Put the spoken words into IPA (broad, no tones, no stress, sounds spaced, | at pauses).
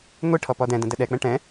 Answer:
ŋʷ i ʈʰ ɔ p ɔ d ɛ̃ d ə̃ d ə ɗ ɛ k͡p ɛ̃ ʈ ɛ̃